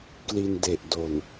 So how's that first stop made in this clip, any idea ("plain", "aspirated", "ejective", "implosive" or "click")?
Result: plain